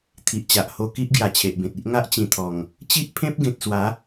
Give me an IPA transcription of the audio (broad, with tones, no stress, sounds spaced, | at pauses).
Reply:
t̪ʰ i˨ ʔ t͡ɕ a˨ ʔ h o˧ k i˦ ʔ ɡ j a˨˩ t͡ɕʰ e˨ ʔ b ẽ˨ t̚ i˦ ʔ ŋ a˦ ʔ t͡ɕ ĩ˨˩ t̪ʰ ɔ˨˩ ŋ | t͡ɕ i˦ ʔ pʰ ẽ˦ p̚ ɡ ẽ˨ t̚ s w a˨˦